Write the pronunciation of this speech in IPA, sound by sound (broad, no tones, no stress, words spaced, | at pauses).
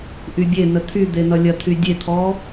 ʔybʲenə t̪ʰyd̪e nʌlʲɐt̪ʰy dʲet̪ʰɔ